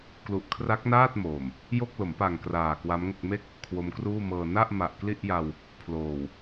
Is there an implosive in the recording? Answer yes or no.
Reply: no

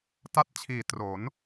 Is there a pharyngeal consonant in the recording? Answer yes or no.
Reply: no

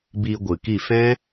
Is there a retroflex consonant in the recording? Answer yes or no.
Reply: no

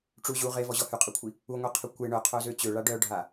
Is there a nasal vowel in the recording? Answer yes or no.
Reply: no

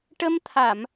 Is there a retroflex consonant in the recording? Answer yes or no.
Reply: yes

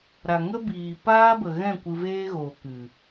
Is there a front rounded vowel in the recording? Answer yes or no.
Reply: no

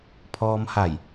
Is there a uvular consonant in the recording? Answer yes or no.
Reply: no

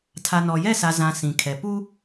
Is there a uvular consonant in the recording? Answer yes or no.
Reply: no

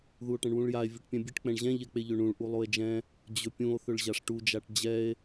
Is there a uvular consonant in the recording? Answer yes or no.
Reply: no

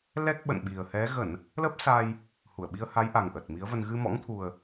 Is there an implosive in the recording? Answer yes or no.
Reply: yes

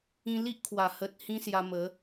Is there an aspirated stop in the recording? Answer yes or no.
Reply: yes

